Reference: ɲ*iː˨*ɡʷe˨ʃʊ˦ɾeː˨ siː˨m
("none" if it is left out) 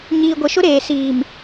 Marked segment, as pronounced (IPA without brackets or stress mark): iː˨